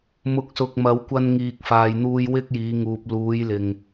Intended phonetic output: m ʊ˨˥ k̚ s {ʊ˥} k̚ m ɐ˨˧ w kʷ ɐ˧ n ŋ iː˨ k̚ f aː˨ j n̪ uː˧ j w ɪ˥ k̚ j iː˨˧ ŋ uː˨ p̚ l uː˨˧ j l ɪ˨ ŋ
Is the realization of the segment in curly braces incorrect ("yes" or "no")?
yes